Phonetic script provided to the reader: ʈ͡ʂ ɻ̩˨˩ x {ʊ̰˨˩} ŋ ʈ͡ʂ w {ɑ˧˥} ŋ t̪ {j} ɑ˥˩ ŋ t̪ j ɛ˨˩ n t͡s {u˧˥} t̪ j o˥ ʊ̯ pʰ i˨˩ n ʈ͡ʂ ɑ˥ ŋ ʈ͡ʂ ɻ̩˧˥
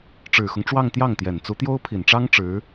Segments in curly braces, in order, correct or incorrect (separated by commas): incorrect, incorrect, correct, correct